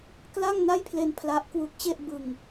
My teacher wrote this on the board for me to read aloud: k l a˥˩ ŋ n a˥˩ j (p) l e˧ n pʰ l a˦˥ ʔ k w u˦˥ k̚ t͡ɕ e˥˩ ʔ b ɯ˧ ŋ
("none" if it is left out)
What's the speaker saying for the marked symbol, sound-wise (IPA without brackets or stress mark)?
pʰ